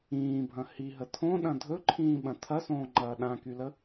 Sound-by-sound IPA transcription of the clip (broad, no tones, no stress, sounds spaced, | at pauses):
ĩː bʱ ɐ̃ h i ɦ ə tʰ õ ɗ ɐ̃ dʱ ɵ ǃʰ ĩː ɓ ɐ̃ tʰ ɐ s õː ŋ͡ǃ ɐː ɗ ã k y l ə